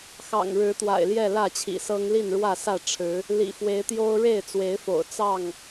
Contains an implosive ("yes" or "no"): no